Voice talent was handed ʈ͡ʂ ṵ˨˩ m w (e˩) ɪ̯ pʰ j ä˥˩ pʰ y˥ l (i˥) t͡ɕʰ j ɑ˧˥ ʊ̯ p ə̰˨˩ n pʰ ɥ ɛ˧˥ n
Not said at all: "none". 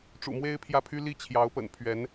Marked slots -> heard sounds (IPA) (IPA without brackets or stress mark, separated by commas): e˥, i˥